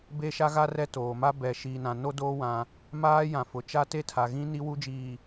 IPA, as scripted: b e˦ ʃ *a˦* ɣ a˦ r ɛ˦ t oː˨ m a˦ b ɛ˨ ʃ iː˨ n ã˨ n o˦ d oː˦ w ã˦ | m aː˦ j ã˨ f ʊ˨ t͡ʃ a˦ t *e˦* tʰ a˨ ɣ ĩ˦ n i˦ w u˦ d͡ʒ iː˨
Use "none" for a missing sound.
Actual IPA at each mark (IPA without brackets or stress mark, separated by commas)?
a˦, e˦